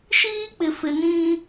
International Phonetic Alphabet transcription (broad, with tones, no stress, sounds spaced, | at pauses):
ʃ iː˦ k͡p ɪ˨ f ɪ˨ n ĩ˦